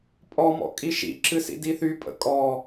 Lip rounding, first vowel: rounded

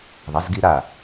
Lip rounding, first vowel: unrounded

